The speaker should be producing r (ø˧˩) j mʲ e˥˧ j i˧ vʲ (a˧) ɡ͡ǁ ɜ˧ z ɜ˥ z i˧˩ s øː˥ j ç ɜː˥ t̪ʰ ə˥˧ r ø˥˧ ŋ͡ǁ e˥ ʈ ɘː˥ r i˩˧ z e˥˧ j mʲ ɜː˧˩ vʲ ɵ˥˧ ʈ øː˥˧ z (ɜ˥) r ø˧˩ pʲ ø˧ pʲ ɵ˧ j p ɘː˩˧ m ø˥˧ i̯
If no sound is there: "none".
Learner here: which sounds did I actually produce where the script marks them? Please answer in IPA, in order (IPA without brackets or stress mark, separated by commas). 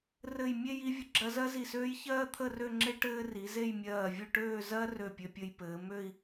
ɘ˧˩, ə˧, ɜ˥